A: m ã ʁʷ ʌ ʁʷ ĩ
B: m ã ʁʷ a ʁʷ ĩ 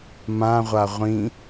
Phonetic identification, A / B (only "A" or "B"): B